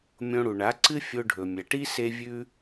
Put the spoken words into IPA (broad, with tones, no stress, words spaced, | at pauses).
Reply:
mʲõ˧ɽu˨ɳa˨˦ǀɨ˦ fʲo˧ɖʱɵ˨mʲɐ˨ʈi˦ se˦vʲʉ˦